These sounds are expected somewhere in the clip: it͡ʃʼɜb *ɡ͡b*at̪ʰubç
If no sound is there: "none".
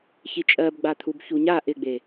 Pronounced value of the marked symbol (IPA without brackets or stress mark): ɡ͡b